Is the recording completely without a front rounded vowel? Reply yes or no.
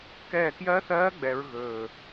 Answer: yes